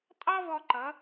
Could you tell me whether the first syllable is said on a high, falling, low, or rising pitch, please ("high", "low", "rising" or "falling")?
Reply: high